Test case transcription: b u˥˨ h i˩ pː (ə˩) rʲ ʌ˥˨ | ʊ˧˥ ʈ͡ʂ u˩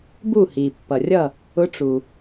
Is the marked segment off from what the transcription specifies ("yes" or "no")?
yes